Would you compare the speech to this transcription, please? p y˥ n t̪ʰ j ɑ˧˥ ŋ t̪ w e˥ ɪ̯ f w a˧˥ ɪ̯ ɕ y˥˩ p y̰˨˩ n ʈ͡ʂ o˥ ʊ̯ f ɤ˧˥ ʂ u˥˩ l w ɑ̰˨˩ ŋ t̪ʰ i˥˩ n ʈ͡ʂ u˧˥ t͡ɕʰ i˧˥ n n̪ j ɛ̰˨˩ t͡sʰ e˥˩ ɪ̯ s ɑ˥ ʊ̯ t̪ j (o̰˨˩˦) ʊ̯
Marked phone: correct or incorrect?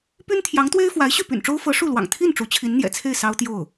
incorrect: o˥˩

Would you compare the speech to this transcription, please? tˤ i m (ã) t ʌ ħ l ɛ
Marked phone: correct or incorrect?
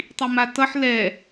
incorrect: a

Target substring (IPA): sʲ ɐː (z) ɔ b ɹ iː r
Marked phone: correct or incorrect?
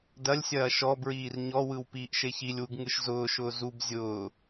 incorrect: ʃ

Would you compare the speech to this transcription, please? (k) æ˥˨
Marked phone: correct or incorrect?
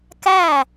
correct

